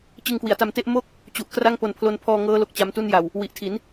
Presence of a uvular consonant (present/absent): absent